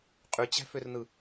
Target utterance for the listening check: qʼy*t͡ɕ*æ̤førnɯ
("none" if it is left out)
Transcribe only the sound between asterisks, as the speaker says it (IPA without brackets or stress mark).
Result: t͡ɕ